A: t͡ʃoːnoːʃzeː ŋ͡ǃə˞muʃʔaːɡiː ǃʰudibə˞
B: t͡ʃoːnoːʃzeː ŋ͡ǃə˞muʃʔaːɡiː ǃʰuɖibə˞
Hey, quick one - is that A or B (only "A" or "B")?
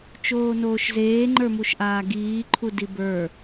A